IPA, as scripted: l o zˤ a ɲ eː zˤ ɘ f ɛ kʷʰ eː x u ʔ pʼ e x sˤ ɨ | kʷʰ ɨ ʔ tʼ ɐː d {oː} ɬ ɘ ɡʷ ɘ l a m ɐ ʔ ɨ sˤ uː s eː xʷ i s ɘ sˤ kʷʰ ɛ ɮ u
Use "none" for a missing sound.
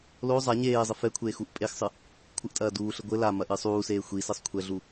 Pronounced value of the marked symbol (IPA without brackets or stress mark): uː